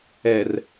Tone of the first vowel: low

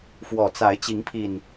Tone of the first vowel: low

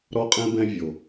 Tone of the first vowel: high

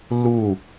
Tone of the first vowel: falling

